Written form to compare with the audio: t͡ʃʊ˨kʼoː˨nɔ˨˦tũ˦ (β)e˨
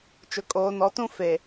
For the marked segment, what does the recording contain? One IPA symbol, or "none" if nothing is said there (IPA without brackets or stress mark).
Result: f